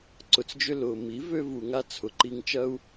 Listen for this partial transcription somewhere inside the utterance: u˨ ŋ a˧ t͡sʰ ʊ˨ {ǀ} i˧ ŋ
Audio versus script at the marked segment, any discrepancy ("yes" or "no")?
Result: yes